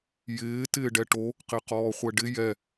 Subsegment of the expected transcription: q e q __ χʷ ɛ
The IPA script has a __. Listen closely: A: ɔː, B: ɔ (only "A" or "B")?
A